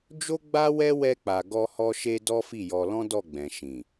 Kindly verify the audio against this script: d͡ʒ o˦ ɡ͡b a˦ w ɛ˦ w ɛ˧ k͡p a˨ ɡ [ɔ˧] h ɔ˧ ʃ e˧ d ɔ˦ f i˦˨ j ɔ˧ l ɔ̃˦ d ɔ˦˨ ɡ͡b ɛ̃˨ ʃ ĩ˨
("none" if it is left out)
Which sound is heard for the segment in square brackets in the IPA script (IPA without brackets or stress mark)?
ɔ˧